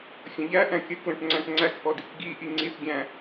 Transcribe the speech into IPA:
xʲ ə̃ ʎ æ ʔ æ̃ kʲ ə k l ə̃ ʈ ŋ͡ǀ æ̃ ʈ ŋ͡ǀ æ k ʔ ɔ d i k ɡ i ʔ i ŋ͡ǀ i θ ɡʲ æ̃

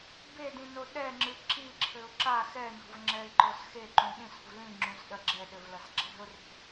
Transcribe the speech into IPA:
b e d ĩ n o ɗ ɛ ŋ͡ǁ ɨ ǁ i ǁʰ ɘ ʊ̯ ǁ a x ɛ n ɔ̤ v ŋ͡ǁ ɛ ɪ̯ ǃ ɔ s x e ǃ ũ ɗ ĩ s ṳ v l ĩ ŋ͡ǁ ũ s ɗ ɐ ɡ͡ǁ ɛ ɗ ɘ v l ɐ s ǁ ɛ̤ ʊ̯ r e̤

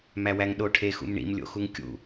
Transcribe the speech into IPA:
m æ w æ ŋ ɗ o ʈʰ e x ṵ m ɳ ḭ m lʲ o̰ x u ŋ kʲ ṵ

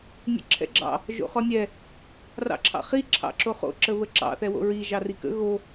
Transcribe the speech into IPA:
nʲ ə̰ ǁʰ ɛ̰ ɡ͡ǁ ɑ̰ | ʒ o̰ χ ɔ nʲ ɛ | r ɑ̰ ǁʰ ɑ̰ χ i ǁʰ ɑ̰ ǁ o χ o̰ ǁ ə β ə ǁ ɑ̰ θ ɛ w o̰ ɹ i ʒ ɑ r i k ə̰ ɣ o

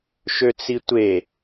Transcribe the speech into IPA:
ʃ ø t͡s i tʷ e

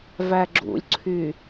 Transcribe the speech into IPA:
v æ ɡ͡ǁ ṵ lʲ ǀʰ y

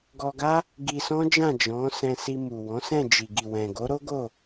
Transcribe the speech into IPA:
ɡ ɔ˧ ɡ a˦ | ɡ i˧ s ɔ̃˦ d͡ʒ ã˦˨ d͡ʒ ɔ̃˨˦ s ɛ̃˧ s i˧ m u˨ w ɔ̃˨˦ s ɛ̃˦˨ d͡ʒ i˨ ɡ i˨ w ɛ̃˨ ɡ o˨˦ ɾ o˦ ɡ o˦˨

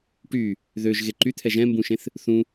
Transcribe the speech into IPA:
ʈ y | ð ø ʒ ɣ e ǃ y t̪ʰ ɛ ʒ ɛ̃ m b ũ ʃ ẽ θ | θ ũ

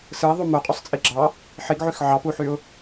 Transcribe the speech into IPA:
s ɯ ɪ̯ ðˤ u m o qʼ ø sˤ t͡sʼ i ɡ͡ǁ ɑ | ħ i ɡ ʕ y x ʕ ɑ p u ħ y ʊ̯

